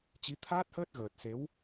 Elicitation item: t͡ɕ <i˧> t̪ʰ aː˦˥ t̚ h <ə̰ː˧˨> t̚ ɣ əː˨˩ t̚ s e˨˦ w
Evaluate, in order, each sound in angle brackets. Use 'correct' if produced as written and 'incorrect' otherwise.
incorrect, incorrect

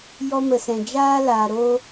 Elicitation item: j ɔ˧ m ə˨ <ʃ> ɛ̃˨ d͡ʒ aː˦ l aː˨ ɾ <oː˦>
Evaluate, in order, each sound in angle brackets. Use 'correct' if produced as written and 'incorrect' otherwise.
incorrect, correct

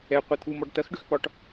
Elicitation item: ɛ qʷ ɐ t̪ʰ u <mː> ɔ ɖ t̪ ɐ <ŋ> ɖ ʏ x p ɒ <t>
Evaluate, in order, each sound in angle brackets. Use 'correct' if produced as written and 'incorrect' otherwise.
incorrect, incorrect, incorrect

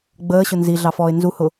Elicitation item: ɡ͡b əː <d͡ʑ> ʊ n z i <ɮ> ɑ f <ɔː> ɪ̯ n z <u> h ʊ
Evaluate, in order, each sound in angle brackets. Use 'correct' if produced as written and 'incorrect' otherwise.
incorrect, correct, correct, correct

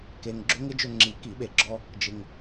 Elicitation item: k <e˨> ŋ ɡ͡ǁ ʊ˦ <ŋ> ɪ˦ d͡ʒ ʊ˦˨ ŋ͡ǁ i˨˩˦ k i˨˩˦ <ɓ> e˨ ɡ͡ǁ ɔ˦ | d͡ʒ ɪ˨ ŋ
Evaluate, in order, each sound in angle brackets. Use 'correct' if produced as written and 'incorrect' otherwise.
correct, correct, correct

